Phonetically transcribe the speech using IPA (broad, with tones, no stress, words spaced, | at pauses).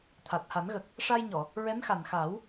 t̪ʰa˨˩t̚ha˨˩˦nɣə˨˩k̚ | ʂa˧jɲɔ˨˩˨ | ɹɛ˧˥nxa˨˩nxaː˨˩˦w